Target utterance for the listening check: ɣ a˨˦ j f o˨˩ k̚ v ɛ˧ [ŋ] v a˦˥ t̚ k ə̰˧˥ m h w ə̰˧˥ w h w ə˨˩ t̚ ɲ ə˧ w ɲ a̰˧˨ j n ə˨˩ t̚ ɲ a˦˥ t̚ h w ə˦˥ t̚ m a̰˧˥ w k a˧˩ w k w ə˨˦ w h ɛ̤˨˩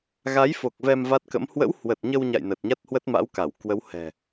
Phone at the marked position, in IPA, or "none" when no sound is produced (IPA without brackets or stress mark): m